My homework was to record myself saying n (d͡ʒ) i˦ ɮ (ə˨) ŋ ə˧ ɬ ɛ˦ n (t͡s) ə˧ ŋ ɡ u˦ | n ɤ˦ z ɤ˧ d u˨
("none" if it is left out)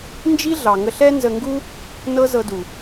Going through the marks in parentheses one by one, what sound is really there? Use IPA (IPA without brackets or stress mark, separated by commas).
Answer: d͡ʒ, ɑ˨, z